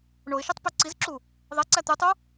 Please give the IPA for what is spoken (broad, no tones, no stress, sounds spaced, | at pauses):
ɳ o ɪ̯ ʃ i tˤ p y ǀ i z ǁ u | ðˤ e ǀ æ t̪ y tˤ u